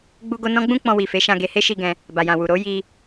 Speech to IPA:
ɡ͡b u˦ ɡ o˦ n ɔ̃˦ ɡ͡b ũ˦ k͡p ɔ̃˧ w i˨ f e˨˦ ʃ ã˧ ɡ e˧ h e˦ ʃ i˧ ɡ ɛ̃˧ | b a˨ j ã˨ w u˨ ɾ o˨˦ j i˧

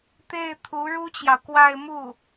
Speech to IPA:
t̪ e˥˩ ɪ̯ t̪ʰ u˧˥ ɻ u˥ t͡ɕ j ɑ˨ ʊ̯ k w a˥˧ ɪ̯ m u˥˩

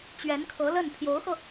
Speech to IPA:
t͡ɕ ɥ ɛ˧˥ n kʰ ɤ˧˥ l ə˥˩ n pʰ j o˧˥ ʊ̯ x ɤ˧

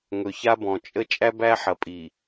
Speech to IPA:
ŋ ɵ˨ ç a˦ b ɔ̃˨ t͡ʃʼ ə˦ t͡ʃʼ æ˦ b æ˦ ħ ɐ˨ pʼ i˨

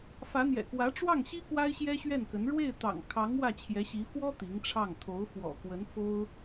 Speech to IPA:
f ä˧˥ n̪ j ɛ̰˨˩ k w ä˧˥ ʈ͡ʂ w ɑ˥˩ ŋ ɕ i˥ k w a˥ ɪ̯ ɕ j ɛ˥ ɕ ɥ ɛ˥˩ n k ə˧˥ n ɻ w e˥˩ ɪ̯ t̪ ɑ̰˨˩ ŋ kʰ ɑ˧˥ ŋ w ä˥˩ t͡ɕʰ j ɛ˧˥ ɕ i˧˥ f w ɔ˥ t̪ i˧˥ ŋ ʈ͡ʂʰ ɑ˥˩ ŋ t̪ʰ o˧˥ ʊ̯ f w ɔ̰˨˩ k w ə˧˥ n f o˥ ʊ̯

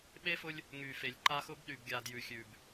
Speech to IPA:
ɓ e˦ f ʊ˦ lʲ | ŋ y˨ f e˨ lʲ ǃ a˦ x ʊ˦ b ɗ y˨ b ɡʲ a˨ d j ʉ˨ xʲ ʉ˨ b

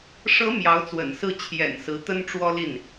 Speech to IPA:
ʂ ɤ˧˥ m j ɑ˧˥ ʊ̯ t͡s w ə̰˨˩ n s ɹ̩˥˩ t͡ɕʰ j ɛ̰˨˩ n s ɹ̩˧˥ t̪ ə˥ n ʈ͡ʂ w ɔ˥ l i˥˩ n

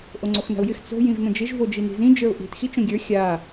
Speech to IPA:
ʔ o ŋ͡ǀ o x n a̤ ʊ̯ j ɪ x t͡s o̤ j ĩ v n ə̃ d͡ʒ ɪ ʒ v o d͡ʒ i n i̤ z ĩ d͡ʒ ə˞ ʊ̯ ʔ i̤ t x i t͡ʃ õ ɡʲ ə˞ xʲ a

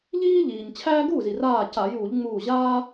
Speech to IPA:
ʎ iː˥ ʎ iː˩ ɲ t͡ɕʰ æː˥ ɡ uː˥˩ z i˩ r aː˧˩ c a˧˩˧ j uː˧˩˧ ʎ ŋ͡m uː˧˩ ʑ aː˥

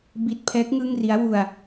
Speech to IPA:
b i˥˩ t̚ pʰ ɛː˦˥ k̚ ŋ ɯ˥˩ ŋ r i˦˥ a̯ w u˧ a̯

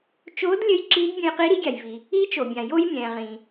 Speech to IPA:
t͡ʃ oː˧˥ d lʲ ɘ˧˥ j ǁ i˧˥ d bʲ ə̃˧ j q i˧˥ ɾ i˧˥ ɡʲ a˩ j v i˩ | i˧˥ t͡ʃ o˩ bʲ ã˩ j o˧ j mʲ ɛ̃ː˩ ʁ ĩ˩

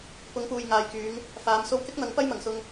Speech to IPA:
p ʊ˨˧ ŋ p uː˨ j ŋ aː˨ j k yː˨˧ ŋ | f aː˨˧ m s o˧ w k ɪ˥ k̚ n̪ ɐ˨˥ ŋ p ɐ˥ j m ɐ˨˩ ŋ s ʊ˧ ŋ

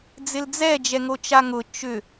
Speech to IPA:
d͡z ɪ l d͡z ɛ d͡ʒ ɛ ŋ o t͡ʃ a ŋ ʊ t͡ʃ ʏ

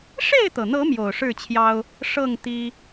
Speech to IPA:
ʂ e˥˨ ɪ̯ t̪ ɤ˩ n̪ ɤ˨˦ m j o˨˩ ʊ̯ ʂ ɻ̩˥˨ t͡ɕʰ j ɑ˦ ʊ̯ | ʂ ɤ˥˨ ŋ t̪ i˦

